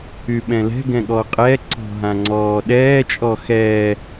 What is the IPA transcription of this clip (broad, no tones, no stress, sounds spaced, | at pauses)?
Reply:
y ɓ ɛ̃ l ɛ̤ ɡ ɛ̃ ɠ ɔ qʼ ɛ ǀ ɔ̤ ɦ ã ŋ͡ǀ ɔː ɗ ɛː t͡ʃʼ ɔ x ɛː